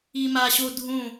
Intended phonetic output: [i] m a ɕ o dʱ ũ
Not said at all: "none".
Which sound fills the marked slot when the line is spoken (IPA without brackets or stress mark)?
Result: i